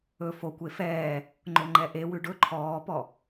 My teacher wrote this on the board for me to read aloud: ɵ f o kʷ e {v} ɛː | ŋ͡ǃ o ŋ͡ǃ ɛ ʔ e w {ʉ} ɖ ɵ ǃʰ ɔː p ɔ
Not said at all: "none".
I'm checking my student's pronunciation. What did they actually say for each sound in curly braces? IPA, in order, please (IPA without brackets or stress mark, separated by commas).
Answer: f, ʉ